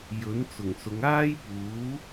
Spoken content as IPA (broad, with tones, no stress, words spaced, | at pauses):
jɵ˨˥nt͡sʊ˨˩ŋsʊ˨˧ŋ aː˥jpuː˨˥